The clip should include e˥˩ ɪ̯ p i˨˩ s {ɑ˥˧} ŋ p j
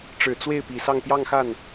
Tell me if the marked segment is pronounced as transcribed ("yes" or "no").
yes